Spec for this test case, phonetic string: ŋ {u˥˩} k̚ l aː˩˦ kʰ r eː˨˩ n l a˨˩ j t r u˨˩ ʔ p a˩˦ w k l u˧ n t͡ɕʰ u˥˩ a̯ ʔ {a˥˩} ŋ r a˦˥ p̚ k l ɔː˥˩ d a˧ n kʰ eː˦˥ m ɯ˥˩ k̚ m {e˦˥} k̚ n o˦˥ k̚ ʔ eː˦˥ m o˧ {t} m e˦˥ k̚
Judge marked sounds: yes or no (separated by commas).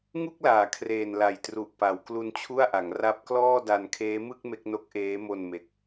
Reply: yes, no, yes, no